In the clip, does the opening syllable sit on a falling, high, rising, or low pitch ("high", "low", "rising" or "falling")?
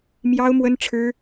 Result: high